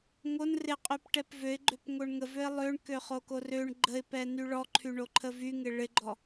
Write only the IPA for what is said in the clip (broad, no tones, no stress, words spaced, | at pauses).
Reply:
ŋon rɪqʼyp ʈɛpvøɪ̯ ɡ͡ǃøpŋoɳŋəvøɪ̯ lˠøɳkøχoko røɳ ɡ͡ǃəɪ̯pɛ nyɭɔǃʰyɳo ǃʰəvyŋɪ ɭɪɡ͡ǃɔ